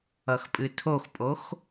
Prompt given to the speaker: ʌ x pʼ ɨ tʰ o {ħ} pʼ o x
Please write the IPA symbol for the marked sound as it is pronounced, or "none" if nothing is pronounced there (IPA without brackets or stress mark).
x